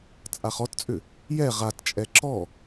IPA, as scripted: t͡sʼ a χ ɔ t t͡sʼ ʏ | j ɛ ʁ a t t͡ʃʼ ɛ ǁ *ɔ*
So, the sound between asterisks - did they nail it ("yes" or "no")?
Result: yes